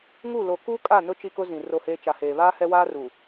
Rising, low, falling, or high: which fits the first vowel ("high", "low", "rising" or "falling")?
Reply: falling